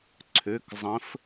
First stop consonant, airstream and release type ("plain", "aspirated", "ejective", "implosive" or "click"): click